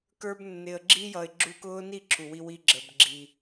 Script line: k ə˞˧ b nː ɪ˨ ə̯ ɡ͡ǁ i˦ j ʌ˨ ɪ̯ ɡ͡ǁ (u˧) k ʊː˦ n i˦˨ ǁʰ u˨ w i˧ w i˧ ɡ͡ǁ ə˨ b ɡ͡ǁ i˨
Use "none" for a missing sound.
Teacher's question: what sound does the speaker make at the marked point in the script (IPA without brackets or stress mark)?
u˧